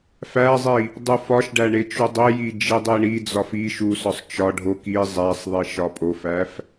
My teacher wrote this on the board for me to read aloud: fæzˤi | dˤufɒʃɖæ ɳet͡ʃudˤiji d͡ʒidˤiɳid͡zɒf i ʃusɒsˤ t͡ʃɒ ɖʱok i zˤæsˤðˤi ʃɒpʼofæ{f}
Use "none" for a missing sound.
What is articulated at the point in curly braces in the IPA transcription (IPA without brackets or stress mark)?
f